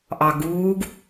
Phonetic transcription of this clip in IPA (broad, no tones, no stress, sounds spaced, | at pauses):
ʔ ɑ ɡ uː ɡ